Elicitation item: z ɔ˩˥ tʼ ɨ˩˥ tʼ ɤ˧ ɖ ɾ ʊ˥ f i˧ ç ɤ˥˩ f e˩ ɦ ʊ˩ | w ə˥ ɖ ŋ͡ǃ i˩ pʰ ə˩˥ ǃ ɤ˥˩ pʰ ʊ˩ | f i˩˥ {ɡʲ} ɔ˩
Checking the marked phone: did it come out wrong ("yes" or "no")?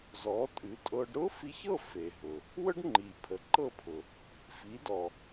yes